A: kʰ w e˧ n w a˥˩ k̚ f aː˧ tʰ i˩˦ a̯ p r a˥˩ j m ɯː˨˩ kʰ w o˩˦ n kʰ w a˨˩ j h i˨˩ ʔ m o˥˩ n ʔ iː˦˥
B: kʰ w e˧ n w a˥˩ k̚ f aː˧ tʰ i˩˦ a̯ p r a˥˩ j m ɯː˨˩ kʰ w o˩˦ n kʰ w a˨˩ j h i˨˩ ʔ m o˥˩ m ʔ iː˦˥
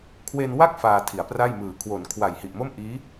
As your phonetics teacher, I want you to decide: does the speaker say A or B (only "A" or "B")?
B